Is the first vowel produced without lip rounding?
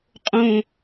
no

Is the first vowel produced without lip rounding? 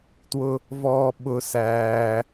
no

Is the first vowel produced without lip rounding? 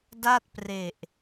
yes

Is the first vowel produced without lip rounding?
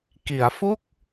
yes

